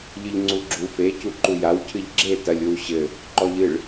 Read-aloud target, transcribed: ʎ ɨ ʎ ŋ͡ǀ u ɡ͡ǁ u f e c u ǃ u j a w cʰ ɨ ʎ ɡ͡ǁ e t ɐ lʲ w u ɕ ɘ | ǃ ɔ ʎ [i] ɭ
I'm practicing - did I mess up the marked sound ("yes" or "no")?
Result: yes